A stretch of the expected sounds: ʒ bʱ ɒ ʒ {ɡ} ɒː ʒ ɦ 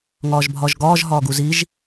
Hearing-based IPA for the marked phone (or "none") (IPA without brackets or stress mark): ɡ